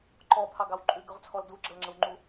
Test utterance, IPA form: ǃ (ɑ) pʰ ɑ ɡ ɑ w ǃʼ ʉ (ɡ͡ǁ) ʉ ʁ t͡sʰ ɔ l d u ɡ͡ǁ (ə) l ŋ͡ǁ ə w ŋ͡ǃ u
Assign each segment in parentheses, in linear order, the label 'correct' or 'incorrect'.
incorrect: ɔ, incorrect: ɡ, correct

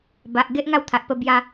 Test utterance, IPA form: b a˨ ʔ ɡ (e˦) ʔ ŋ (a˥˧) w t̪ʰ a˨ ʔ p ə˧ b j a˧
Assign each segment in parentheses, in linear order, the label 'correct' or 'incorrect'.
correct, correct

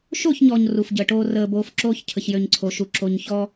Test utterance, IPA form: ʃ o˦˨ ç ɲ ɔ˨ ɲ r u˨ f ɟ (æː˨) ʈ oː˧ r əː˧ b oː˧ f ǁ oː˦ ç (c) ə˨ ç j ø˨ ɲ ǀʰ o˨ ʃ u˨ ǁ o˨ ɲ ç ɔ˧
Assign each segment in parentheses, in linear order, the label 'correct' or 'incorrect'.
incorrect: əː˨, incorrect: cʰ

